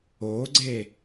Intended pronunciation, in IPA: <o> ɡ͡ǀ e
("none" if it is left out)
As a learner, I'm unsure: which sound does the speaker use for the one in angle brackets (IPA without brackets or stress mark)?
o